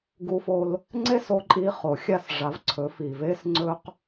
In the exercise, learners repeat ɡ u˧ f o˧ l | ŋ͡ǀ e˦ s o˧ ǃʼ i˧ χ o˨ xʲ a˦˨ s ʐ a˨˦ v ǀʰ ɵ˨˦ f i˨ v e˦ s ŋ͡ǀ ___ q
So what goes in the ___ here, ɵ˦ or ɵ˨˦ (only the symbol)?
ɵ˦